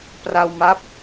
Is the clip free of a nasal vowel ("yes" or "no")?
yes